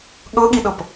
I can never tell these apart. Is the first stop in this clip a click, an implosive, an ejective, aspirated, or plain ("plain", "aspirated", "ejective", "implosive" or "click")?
implosive